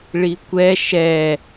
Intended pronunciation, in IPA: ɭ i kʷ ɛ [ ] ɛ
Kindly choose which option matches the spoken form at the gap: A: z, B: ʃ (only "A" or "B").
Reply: B